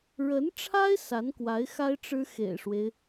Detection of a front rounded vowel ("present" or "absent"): absent